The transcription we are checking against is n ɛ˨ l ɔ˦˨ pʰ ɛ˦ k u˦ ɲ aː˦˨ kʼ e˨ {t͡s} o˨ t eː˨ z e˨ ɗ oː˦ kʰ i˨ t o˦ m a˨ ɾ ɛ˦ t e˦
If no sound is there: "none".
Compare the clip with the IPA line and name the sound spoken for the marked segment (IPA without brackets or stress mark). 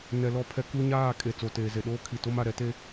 t͡s